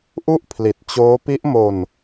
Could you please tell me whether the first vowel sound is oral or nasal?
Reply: oral